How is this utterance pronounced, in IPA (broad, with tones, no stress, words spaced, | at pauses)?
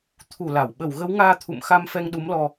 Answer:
t̪ʰu˧˩ la˧˩w ɓə˧˩wɣə˨˦wŋaː˧ t̪ʰṵ˧˨mxa˧m fɛ˧ŋɗu˨˦mlɔ˧